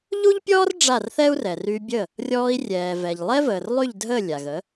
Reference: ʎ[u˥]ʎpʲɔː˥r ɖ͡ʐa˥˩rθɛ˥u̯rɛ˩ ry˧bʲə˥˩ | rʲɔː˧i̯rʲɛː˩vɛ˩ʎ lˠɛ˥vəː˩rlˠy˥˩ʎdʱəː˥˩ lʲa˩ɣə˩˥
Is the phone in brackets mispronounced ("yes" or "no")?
no